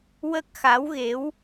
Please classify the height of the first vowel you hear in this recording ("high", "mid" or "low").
mid